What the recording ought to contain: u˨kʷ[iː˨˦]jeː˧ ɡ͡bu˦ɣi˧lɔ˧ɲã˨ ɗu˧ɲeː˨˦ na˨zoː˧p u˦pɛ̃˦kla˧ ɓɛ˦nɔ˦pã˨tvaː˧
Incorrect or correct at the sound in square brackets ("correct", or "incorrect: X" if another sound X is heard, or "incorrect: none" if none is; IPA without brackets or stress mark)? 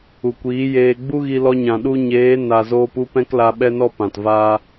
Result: correct